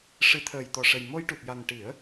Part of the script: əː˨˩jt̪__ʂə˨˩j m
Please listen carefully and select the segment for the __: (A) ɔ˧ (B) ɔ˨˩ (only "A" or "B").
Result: B